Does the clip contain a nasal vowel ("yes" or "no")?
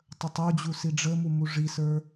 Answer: no